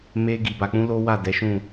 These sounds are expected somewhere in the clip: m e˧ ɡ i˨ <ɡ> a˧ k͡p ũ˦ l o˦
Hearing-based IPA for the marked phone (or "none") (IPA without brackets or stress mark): b